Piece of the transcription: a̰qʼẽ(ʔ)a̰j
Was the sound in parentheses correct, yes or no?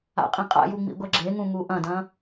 no